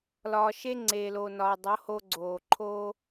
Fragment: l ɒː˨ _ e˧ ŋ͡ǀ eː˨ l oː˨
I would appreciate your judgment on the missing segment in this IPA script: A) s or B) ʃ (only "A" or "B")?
B